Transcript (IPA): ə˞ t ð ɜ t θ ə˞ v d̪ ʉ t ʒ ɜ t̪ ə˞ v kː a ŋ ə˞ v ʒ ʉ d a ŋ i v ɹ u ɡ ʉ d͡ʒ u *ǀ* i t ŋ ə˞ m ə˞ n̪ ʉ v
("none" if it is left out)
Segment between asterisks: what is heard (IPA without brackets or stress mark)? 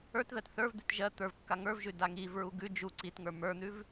ǀ